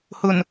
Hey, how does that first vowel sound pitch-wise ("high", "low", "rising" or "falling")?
low